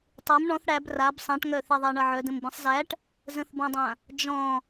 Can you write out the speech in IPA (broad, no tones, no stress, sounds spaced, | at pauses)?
tˤ e m ɳ ɔ̃ θ ɽ æ b r a b sˤ ã ʈ ŋ œ θ e ðˤ æ ɳ ʌ ʕ œ d ə̃ m b ĩ sˤ z æ ʈ | z ə̃ θ b ɔ̃ dˤ ã | d͡ʒ ɔ̃